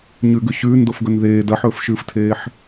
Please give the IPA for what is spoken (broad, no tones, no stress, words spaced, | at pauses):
ɲʉɡʉ ɕʉːndofɡɵn ðeː dɐħɵːfʃɨːftʰeːħ